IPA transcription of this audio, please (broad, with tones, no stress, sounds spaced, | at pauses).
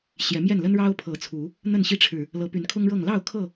ɕ j ɛ˨˦ m j ɛ˥˨ n l ə˦ n ɻ ɑ˦ ʊ̯ pʰ ɤ˨˦ t͡sʰ u˨˦ | n̪ ə˥˨ n ɕ i˦ ʈ͡ʂʰ ɻ̩˨ | l ɤ˨˦ p y˨˦ n kʰ ʊ˦ ŋ ɻ ɤ˥˨ ŋ l ɑ˥˨ ʊ̯ kʰ ɤ˥˨